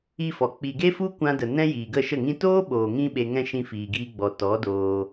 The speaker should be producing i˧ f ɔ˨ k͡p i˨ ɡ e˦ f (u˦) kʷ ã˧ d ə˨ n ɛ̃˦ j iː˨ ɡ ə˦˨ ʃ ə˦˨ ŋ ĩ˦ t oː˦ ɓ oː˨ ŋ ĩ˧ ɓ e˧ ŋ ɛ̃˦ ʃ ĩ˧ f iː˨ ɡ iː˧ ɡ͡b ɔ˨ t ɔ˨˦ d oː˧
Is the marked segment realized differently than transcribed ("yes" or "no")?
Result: no